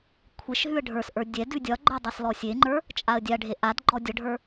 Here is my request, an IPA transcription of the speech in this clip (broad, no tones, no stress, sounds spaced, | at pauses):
kʷʰ e ʃ ɦ ʉ ə̯ ɖʱ ə˞ s ʔ ə˞ dʲ ɛ d ʉ dʲ ɒ ɡ͡ǃ ə˞ dˤ ɛ s l ɔ sʲ e ŋ͡ǃ ə˞ | t͡ʃʼ a ə̯ dʲ a ɖʱ e ʔ a d ɡ͡ǃ ɔ dʲ ʌ ɖʱ ə˞